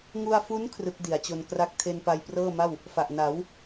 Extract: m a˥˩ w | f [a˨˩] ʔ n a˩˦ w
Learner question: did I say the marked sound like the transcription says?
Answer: yes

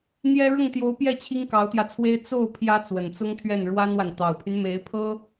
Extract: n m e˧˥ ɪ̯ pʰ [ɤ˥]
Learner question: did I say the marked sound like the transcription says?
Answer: yes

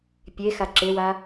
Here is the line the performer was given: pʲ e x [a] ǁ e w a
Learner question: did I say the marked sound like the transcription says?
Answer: yes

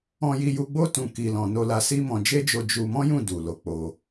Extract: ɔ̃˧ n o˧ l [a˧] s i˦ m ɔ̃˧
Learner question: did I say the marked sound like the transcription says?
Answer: yes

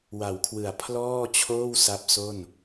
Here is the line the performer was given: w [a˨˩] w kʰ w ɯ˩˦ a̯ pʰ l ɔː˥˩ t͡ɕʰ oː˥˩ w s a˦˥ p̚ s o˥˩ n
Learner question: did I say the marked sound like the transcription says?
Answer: no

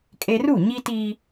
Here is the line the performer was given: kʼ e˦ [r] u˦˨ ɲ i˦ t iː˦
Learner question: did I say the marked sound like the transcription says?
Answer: yes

